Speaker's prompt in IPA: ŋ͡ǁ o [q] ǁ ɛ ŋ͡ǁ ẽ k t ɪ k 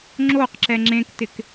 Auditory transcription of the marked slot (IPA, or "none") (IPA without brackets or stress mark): q